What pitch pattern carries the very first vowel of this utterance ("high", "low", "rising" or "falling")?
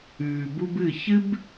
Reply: low